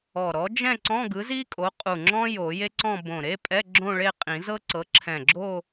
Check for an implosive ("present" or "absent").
absent